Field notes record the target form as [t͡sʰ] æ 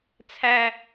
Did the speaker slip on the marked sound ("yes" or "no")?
no